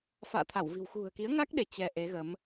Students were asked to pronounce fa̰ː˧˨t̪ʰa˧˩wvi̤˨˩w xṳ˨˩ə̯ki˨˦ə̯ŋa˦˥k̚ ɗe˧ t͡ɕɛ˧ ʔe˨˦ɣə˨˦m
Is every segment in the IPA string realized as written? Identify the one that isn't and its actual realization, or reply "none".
none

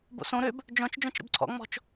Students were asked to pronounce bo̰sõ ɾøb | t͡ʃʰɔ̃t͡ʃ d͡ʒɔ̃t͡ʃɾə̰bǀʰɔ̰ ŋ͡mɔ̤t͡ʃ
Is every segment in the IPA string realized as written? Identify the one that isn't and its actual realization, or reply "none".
t͡ʃʰ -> d͡ʒ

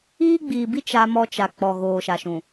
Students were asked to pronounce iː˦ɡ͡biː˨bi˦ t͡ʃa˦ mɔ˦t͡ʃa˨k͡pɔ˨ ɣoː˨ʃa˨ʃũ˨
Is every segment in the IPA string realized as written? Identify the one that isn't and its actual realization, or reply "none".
none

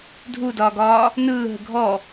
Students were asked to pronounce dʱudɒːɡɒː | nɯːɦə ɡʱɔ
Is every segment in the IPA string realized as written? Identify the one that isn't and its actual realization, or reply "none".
none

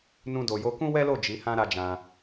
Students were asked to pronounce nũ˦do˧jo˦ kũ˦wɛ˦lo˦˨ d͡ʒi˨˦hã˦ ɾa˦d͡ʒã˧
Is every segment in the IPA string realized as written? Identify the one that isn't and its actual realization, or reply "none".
none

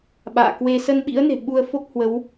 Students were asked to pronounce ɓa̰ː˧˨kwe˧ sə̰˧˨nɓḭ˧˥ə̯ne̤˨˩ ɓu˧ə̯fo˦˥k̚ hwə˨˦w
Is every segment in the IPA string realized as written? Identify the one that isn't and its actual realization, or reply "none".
ə̰˧˨ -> ə˧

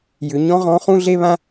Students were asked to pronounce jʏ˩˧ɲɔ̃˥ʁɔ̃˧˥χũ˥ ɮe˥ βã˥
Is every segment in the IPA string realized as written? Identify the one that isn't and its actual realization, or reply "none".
none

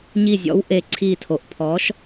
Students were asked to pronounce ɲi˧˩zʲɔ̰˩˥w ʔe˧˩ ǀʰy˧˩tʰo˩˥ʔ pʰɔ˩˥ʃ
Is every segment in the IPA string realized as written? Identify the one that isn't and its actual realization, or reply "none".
y˧˩ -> i˧˩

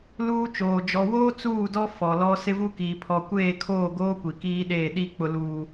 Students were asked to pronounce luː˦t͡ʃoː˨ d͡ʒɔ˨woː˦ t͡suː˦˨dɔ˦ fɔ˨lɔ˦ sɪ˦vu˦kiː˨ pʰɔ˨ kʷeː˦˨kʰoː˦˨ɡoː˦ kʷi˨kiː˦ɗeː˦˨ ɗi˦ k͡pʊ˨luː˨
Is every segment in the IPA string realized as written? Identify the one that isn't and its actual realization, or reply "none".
none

